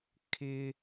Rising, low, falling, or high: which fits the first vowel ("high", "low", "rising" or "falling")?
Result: high